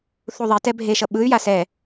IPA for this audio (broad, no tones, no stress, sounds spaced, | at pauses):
θ u ðˤ e t ɛ bʱ e ʃ ʌ ɓ ɯ y̯ j a s ɛ